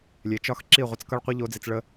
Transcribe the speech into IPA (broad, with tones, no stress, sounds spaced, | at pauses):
lʲ e˨ t͡ʃ ɒ˦ x ǁ i˦˨ ʁʷ ʌ˧ t͡s k ʌ˦ ɭ qʷ i˦ ʎ o˦ d͡z i˧ t͡s ɭ ə˦